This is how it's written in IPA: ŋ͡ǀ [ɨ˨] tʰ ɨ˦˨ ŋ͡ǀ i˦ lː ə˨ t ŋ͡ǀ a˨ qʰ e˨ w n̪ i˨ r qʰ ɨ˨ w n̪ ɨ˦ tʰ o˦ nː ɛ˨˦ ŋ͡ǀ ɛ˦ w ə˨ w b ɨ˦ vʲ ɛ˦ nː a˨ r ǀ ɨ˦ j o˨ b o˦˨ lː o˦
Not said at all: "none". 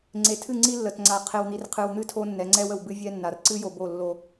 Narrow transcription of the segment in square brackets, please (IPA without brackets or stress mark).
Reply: e˨